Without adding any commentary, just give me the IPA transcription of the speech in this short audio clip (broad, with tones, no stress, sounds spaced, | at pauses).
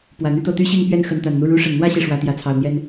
p w ä˨˩ n̪ y˥˧ t̪ ɤ˥˩ t̪ y˥ ɕ i˥˧ ŋ p ɥ ɛ˥˩ n x ə˧˥ n t̪ a˨˩ n n̪ u˥˩ ɻ u˧˥ ʂ ə˨˩ n n̪ w ä˥˧ ɕ i˥˩ ʂ w ä˧˥ t̪ j ä˧˥ t͡sʰ ɑ˨˩ ʊ̯ n̪ j ɛ˥ n